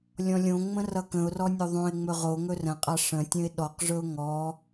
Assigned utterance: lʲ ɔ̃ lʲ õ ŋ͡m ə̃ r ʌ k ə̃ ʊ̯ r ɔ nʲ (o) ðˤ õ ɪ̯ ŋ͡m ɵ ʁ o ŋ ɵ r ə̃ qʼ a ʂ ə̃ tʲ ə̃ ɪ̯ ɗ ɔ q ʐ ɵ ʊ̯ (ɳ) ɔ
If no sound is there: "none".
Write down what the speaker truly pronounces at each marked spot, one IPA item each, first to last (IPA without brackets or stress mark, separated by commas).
o, ŋ